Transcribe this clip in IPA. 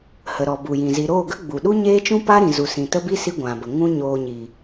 h ə˨ ɾ ɔ˨ b u˨ j ĩ˨ z i˨ ɾ oː˦˨ ɡ ə˦ ɡ͡b u˨ ɗ u˦ ɲ eː˦ t͡ʃ ũ˦ p a˦ ɾ ĩ˨ z u˨ s ĩ˨ t ə˦ b i˦ s i˦ ɡʷ ã˨ b ə˨ ŋ ũ˦ ɲ oː˧ ɲ i˨

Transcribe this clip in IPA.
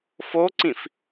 f o ǀ ĩ f

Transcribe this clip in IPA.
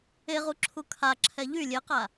e ʁ u ǁʰ u kʰ a ǁʰ ɛ ʎ y lʲ e q a

